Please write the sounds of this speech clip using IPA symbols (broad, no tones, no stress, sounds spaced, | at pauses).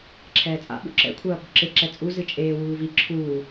ǁʰ ɛː t͡sʼ a̰ ɓ ṵ ǁ ɛ̰ kʷʰ ɐː p o̤ ǁ e ǁ ɛ t͡sʼ u z ɨ t͡ʃʼ eː w uː v i ǁʰ uː